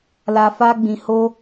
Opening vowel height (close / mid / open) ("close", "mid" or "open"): open